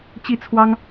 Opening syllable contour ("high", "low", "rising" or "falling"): falling